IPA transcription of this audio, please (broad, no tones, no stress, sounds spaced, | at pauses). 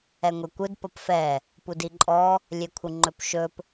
ɛ ŋʷ e kʷ ɯ d p ʌ p f ɛ | p u d i ǃʼ ɔ | lʲ e kʷʰ ɯ ŋ͡ǃ ɵ p ʃ ɵ p